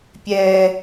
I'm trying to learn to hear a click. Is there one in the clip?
no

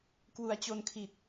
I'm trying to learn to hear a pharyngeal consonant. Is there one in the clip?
no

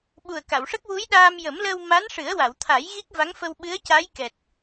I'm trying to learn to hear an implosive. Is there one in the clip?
yes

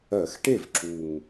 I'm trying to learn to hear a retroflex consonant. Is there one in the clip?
yes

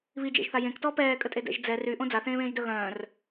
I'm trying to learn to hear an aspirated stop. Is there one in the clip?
no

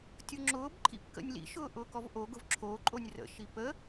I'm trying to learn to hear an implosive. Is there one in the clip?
no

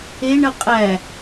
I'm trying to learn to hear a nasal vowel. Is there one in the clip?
no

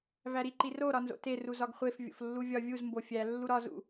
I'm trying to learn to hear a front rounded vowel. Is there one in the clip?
no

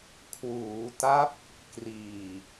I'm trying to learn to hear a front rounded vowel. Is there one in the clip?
no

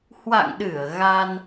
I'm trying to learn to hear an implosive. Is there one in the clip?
yes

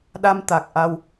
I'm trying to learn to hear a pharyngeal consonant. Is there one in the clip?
no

